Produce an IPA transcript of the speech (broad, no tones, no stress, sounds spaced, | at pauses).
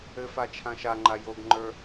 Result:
ɘ f a t͡ʃʰ ã ʃ a ŋ͡ǃ a j o ɡ ŋ͡ǃ ə˞